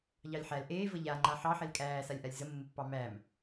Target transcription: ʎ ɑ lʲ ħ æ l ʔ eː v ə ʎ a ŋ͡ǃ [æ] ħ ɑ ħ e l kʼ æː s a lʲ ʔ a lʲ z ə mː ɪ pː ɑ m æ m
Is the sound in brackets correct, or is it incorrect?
incorrect